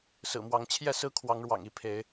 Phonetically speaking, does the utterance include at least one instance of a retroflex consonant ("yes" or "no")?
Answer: yes